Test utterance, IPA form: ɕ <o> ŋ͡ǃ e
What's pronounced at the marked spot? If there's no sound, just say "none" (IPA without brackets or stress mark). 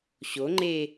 o